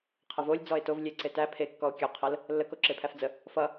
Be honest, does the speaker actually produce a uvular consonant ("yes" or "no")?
yes